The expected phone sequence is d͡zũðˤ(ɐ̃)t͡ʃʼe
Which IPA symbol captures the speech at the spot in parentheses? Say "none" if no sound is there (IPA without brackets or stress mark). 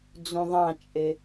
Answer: ɑ̃